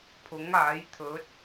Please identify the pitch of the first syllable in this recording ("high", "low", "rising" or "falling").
rising